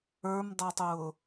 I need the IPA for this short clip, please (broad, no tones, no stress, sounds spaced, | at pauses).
ə˞ m dˤ ɛ tˤ ʊː